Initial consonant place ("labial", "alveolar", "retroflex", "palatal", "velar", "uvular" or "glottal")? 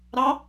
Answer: alveolar